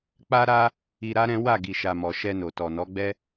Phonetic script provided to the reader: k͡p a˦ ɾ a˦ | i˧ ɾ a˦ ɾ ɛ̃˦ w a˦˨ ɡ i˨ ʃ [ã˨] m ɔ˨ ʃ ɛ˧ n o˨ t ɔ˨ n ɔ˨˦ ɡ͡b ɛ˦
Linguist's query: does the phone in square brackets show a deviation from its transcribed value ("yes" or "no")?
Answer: yes